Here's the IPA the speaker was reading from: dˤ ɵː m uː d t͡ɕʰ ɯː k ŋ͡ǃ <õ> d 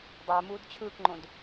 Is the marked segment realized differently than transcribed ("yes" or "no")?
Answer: no